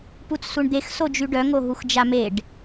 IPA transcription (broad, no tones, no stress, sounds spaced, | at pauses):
p u t͡s s u ɳ d̪ e x s o d͡ʒ y ɖ œ ŋ o ɦ u x d͡ʒ a m e ɖ